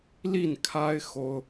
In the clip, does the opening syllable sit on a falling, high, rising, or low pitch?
falling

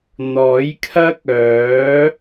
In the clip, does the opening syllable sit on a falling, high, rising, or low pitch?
rising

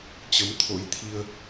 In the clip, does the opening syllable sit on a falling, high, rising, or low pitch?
rising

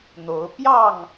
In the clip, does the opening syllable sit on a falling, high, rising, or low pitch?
rising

